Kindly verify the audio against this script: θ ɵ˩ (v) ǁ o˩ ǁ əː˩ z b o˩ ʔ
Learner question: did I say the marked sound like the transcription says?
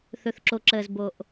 no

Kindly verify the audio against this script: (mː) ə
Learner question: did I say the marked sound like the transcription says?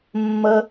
yes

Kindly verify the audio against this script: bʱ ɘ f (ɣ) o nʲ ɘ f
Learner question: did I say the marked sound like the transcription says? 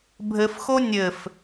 no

